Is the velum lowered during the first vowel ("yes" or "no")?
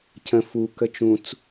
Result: yes